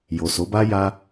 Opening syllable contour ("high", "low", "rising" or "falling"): low